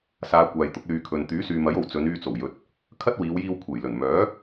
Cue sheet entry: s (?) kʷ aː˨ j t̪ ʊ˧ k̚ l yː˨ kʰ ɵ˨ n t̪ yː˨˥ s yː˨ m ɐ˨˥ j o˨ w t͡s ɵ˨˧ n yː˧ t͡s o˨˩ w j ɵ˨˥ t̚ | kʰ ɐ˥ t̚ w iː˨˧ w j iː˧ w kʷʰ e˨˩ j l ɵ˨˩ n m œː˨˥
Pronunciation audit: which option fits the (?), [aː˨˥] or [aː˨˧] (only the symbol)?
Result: aː˨˧